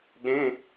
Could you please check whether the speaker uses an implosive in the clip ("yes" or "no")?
yes